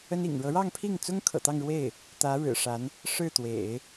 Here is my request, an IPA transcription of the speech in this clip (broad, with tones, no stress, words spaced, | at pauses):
ə˥nḭ˨˩ŋ ɻɤ˧˥ɻɑ˥˧ŋpʰi˥˩ŋt͡sʊ˥ŋ kʰɤ̰˨˩t̪ɑ˥˧ŋɻwe˥˩ɪ̯ | t̪ä˧˥ ɻɻ̩˨˩ʂa˧˥n | ʂɻ̩˥˩t̪wḛ˨˩˦ɪ̯